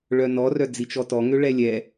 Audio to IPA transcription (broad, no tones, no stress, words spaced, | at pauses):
ɭœnɔrœ d͡zit͡ʃɔtɔŋø ɭɛlʲɛ